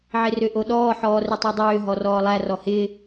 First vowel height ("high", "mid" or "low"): high